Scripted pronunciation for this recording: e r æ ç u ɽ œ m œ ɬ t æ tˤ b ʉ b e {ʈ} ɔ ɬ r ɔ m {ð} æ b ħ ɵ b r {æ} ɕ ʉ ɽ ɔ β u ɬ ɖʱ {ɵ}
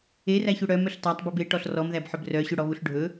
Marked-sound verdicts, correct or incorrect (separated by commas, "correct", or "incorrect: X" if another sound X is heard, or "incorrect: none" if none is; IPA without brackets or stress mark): correct, correct, incorrect: œ, correct